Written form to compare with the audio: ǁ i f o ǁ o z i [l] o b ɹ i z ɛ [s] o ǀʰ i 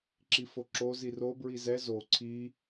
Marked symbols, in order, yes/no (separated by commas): no, no